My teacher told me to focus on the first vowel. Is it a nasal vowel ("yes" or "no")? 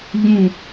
yes